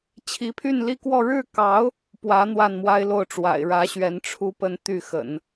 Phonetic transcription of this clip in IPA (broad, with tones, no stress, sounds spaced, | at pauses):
t͡ɕʰ i˧˥ pʰ y˥˧ n l i˥˧ k w ɔ˥˧ ɻ ɻ̩˥˩ k ɑ˧˥ ʊ̯ | p w ä˧˥ n̪ w a˥˩ n m w a˥ ɪ̯ l o˥˩ ʊ̯ ʈ͡ʂ w a̰˨˩ ɪ̯ ɻ ä˧˥ ɕ ɥ ɛ˧˥ n ʈ͡ʂʰ u˥ p ə˥˧ n t̪ y˥˩ x ə̰˨˩˦ n